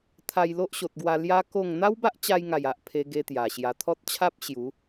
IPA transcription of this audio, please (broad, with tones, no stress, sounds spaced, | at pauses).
t̪ʰ a˧ j l o˦ ʔ ɕ o˨ t̚ ɡ w a˧ l j a˦ k o˥˧ ŋ n̪ a˦ w b a˦ ʔ t͡ɕ a˧ j ŋ a˨˩ j a˦ ʔ pʰ e˦ ɡ e˦ t̪ j a˨˩ ɕ j a˨˩ t̪ʰ ɔ˦ t̚ t͡ɕʰ a˦ p̚ ɕ j u˨˦